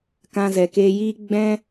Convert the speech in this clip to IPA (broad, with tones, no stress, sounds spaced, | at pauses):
k ã˧ z ɛ˨ k eː˧ j iː˦ ɡ͡b ɛ̃˦